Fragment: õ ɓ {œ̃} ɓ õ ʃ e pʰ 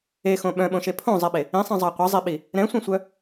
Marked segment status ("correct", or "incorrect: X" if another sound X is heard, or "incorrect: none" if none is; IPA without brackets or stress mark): correct